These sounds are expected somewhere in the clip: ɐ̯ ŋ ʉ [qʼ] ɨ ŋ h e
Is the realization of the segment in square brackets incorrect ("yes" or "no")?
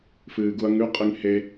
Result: no